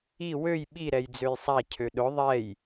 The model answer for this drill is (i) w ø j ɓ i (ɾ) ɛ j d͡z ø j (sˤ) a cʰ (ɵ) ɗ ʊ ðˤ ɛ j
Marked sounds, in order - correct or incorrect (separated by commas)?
correct, correct, correct, incorrect